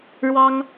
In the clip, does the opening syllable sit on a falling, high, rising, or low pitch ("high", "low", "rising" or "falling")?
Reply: high